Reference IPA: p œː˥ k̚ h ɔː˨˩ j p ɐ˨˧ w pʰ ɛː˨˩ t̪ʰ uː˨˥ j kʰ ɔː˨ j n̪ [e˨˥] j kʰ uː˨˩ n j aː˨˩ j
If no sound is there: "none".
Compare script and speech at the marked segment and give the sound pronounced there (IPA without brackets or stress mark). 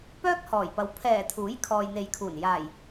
e˨